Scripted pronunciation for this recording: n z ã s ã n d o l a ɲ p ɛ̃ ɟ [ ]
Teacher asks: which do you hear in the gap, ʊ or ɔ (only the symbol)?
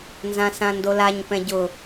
ʊ